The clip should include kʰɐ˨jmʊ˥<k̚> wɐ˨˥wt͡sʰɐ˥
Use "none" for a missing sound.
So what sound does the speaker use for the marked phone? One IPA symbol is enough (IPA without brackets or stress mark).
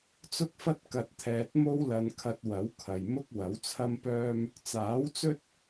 k̚